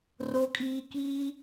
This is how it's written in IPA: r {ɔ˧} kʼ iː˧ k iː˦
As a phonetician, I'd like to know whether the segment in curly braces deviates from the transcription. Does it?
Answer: yes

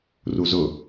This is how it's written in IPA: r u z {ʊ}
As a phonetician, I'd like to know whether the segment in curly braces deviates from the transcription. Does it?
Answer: no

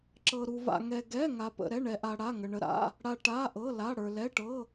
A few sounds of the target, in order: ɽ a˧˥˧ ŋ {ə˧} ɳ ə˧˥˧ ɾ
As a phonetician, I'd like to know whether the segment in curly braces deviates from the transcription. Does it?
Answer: no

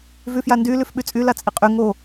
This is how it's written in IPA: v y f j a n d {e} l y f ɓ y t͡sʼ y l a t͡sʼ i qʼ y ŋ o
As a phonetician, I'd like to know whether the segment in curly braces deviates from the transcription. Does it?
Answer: yes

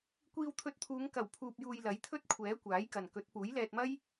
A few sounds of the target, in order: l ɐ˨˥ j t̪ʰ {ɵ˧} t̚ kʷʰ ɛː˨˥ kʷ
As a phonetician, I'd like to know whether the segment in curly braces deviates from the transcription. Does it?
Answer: yes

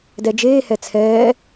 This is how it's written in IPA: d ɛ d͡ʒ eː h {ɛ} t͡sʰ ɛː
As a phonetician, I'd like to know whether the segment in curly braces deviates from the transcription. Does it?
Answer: no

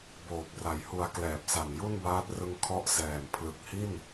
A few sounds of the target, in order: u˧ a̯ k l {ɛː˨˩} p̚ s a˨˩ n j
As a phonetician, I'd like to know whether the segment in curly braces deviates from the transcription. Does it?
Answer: no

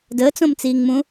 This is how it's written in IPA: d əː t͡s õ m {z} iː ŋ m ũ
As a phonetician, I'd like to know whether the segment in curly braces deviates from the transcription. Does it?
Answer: yes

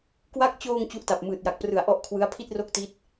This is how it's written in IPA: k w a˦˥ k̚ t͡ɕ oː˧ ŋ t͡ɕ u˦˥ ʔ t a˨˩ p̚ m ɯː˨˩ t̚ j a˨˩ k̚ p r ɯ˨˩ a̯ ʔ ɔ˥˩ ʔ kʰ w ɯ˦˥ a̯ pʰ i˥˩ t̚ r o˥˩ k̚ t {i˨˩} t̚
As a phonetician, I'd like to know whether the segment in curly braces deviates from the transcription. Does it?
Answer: yes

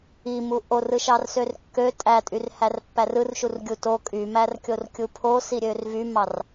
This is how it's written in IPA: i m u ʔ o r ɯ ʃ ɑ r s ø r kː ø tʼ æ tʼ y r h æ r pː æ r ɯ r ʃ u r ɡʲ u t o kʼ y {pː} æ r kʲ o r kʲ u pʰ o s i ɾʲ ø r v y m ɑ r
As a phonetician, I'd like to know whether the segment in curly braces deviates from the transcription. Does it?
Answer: yes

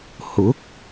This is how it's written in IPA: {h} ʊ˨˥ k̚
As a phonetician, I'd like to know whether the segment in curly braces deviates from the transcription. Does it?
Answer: no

